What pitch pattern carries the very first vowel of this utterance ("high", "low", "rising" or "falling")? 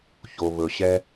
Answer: low